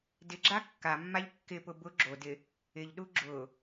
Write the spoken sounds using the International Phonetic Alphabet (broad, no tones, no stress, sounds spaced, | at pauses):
d ɪ ɡ͡ǁ a kː a mː a ʎ kː ɪ p ʊ b ʊ ɡ͡ǁ o d ɪ | ɪ ʎ ɗ u ɡ͡ǁ ʊ